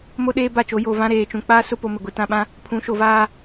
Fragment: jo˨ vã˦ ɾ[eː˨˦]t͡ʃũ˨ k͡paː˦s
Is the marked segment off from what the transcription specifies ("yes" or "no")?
yes